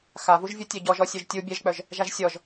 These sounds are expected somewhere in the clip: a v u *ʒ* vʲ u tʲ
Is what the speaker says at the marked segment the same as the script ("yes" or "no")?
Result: yes